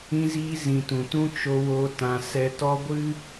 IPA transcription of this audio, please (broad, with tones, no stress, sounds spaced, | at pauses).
ĩ˦ z iː˦ z ĩ˨ t ũ˨ t ũ˦ t͡ʃ o˧ w o˧ t ã˧ s ɛ˧ t ɔ˦ ɡʷ ɨ˦